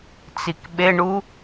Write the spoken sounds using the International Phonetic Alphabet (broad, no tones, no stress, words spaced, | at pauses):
t͡sikɓeɳu